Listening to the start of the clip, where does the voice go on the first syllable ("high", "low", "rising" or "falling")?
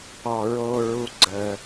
low